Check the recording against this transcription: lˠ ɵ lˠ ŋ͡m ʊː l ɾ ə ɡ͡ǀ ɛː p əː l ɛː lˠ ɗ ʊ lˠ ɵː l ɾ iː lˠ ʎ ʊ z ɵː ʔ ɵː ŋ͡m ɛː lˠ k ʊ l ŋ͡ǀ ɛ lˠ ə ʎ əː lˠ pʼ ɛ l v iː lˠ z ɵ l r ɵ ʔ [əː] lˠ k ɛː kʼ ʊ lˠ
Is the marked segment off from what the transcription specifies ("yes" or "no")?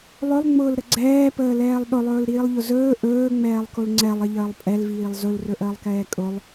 no